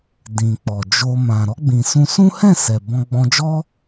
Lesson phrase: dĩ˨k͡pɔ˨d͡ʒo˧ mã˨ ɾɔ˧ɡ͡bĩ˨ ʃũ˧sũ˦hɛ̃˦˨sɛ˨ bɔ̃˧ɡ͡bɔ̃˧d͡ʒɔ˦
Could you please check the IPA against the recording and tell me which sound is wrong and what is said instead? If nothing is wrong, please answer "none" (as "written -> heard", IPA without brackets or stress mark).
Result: ʃ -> s